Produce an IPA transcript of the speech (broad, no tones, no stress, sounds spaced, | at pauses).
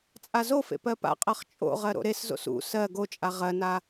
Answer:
t͡sʼ a z o f ḛ p ɜ p a̰ qʼ ɜ χ t͡ʃʼ o̰ ʁ ɜ ɾ o̰ ɾ e s z o̰ s ṵ s ɜ ɡ o t͡ʃʼ a ʁ ɜ n a